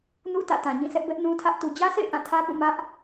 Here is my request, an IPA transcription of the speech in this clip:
nṵ˦˨ tä̰˦˨tã˨ɲĩ˦˨sʰɛ˦ʔ bɛ˦ʔnũ˦tʰä˦ʔ tu˨d͡ʑä˦sʰḛ˦˨ɪ̯ ʔã˦˨tʰä˦pũ˦˨ mä˦ʔ

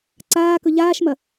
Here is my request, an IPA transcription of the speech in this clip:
ǀaːkɵ ʎaːʃmɐ

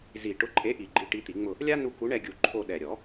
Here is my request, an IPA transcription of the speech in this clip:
zi˨˩˦ ʈʊ˨˥ǃʼe˨˥ʔi˨˩ ɡ͡ǃi˨˥ʈi˨˥ t̪i˨˩˦ŋ͡mʊ˦˨ | lʲa˥ nu˦˨ku˨˥ɳɛ˦˨ɡʲu˨˩˦ ǃʰo˦˨ ɗɛ˨˩ɾʲɔ˨˩˦

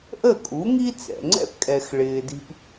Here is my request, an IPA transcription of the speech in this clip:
ʔə˥˩kʼu˩˥ŋi˥ t͡sɛ̰˩ŋ͡ǀɛ̰˥pkʼɛ˩x ɭɪː˩di̤˧p

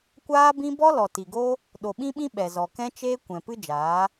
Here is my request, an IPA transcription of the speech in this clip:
kʷaː˦bĩ˦ bɔ˦lɔ˨ti˨ɡo˦ | ɗo˨ɓĩ˦ɓĩ˦ ɓɛ˨zɔ˨kɛ̃˦t͡ʃeː˦ kʷɛ̃˨ pɨ˦d͡ʒaː˨˦

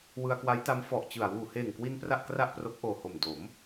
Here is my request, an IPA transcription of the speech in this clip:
wɯ˧a̯kwa˦˥jta˦˥m fɔ˨˩ʔt͡ɕɯ˨˩a̯ wuː˨˩heː˨˩ŋkwi˧n pra˥˩ʔkra˥˩ʔpro˦˥k̚ ʔoː˨˩ho˨˩m do˩˦m

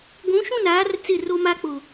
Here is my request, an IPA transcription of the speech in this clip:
ɡʷũ˨˦ʃũ˦˨naː˨˦r t͡sɪ˦˨ro˦ma˦k͡pʊ˨

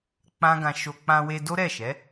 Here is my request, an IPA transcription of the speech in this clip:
k͡pã˦ɡã˧ ʃo˧ k͡pã˧we˧ do˦ɾɛ˦˨ʃɛ˨˦

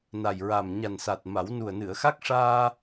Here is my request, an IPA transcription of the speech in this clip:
na˨˩jɹa˨˩m ɲa˨˩nsa˨˩t̚ ma˨˩˦w nu˨˩ə̯ nɨ˨˩˨ə̯xa˦˥k̚ʂaː˧

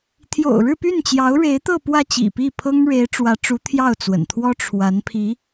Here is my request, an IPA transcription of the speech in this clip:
t̪ʰjo̰˨˩ʊ̯ɻɻ̩˥˧py˥˩n t͡ɕjɑ˧˥ʊ̯ɻe˧˥ɪ̯t̪ɤ˥˧ pwä˥˩t͡ɕḭ˨˩pi˥˩ pʰɤ˥ŋ ɻe˧˥ɪ̯ʈ͡ʂwä˧˥ʈ͡ʂu˧˥ t̪ʰjɑ˥˩ʊ̯t͡swə̰˨˩nt̪ʰwɔ˥ ʈ͡ʂʰwa˧˥npʰi˧˥

